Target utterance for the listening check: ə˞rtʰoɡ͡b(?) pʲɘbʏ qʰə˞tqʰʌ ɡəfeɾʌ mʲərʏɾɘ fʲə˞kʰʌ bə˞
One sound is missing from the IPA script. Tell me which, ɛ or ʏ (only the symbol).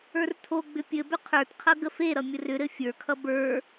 ʏ